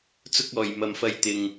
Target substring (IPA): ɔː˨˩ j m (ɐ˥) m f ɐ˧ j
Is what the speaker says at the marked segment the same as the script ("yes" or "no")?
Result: no